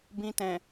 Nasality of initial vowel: nasal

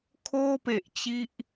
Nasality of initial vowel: oral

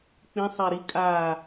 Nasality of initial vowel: nasal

